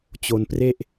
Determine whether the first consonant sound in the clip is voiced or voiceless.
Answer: voiceless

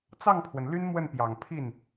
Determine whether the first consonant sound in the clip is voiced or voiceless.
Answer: voiceless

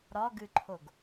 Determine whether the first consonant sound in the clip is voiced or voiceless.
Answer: voiced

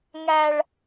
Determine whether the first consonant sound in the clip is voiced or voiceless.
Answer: voiced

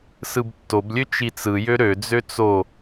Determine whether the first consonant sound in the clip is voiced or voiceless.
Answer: voiceless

